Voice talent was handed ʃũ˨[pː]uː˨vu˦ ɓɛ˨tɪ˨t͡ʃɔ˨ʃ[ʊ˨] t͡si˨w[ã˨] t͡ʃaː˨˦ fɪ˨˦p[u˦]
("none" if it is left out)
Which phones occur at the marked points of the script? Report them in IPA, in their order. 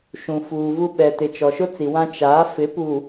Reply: f, ʊ˦, ã˦, u˨

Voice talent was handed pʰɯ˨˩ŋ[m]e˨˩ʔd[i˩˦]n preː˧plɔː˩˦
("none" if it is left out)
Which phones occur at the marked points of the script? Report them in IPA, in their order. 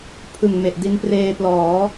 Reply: m, i˧

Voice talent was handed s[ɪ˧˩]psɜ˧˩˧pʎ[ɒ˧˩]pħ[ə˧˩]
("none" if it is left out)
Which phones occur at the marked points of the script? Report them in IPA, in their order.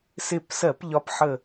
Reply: ɪ˧˩, ɒ˨˦, ə˧˩

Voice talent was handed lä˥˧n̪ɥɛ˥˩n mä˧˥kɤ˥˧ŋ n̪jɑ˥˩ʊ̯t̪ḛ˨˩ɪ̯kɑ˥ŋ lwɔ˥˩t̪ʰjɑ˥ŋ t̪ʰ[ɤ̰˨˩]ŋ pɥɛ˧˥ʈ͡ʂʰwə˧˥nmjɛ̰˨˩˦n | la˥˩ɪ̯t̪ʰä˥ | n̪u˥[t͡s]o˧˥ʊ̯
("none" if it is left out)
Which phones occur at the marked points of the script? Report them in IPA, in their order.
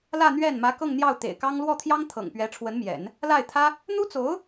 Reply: ɤ̰˨˩, t͡s

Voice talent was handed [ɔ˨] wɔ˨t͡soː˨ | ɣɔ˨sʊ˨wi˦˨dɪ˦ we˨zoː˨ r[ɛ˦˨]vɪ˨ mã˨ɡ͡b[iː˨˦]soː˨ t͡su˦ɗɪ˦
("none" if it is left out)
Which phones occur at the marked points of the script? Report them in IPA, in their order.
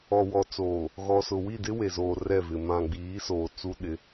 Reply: ɔ˨, ɛ˦˨, iː˨˦

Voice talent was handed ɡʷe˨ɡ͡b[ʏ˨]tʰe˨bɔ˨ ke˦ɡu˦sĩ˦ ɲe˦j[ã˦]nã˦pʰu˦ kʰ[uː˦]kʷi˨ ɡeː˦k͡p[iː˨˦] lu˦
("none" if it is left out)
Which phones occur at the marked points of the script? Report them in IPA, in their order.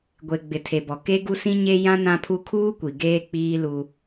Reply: ɪ˨, ã˦, uː˦, iː˦

